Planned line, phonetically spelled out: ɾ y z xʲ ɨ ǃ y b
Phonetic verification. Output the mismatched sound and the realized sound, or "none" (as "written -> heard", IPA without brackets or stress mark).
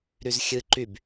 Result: none